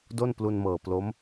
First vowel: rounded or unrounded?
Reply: rounded